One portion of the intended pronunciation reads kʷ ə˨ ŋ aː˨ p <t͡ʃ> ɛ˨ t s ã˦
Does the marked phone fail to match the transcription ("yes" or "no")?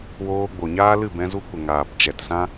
no